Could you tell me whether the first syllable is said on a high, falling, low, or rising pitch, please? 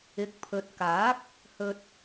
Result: rising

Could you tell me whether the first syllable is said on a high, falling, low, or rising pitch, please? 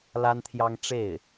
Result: high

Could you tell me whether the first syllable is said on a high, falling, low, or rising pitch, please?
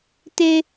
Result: high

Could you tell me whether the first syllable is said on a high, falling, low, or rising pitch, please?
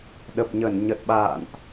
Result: low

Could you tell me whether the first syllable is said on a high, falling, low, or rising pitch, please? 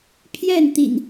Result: falling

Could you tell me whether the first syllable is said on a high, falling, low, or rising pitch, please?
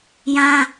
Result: high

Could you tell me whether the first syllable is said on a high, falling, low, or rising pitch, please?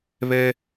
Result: high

